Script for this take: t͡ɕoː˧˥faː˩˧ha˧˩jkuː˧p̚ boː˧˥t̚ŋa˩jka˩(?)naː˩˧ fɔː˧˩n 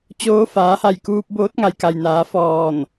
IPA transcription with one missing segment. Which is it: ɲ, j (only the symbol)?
j